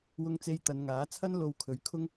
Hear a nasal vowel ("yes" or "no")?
no